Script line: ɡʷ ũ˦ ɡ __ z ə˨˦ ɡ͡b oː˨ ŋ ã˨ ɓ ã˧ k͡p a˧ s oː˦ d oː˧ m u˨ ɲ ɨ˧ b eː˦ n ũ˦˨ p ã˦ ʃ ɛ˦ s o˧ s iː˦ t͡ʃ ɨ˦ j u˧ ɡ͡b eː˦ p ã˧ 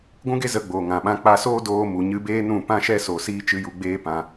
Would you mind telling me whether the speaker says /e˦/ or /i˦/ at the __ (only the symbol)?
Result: e˦